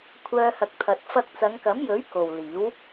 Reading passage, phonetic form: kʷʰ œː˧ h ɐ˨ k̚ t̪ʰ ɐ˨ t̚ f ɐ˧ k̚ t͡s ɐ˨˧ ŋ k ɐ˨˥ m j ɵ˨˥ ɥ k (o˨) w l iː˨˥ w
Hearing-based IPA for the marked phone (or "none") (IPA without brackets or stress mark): o˨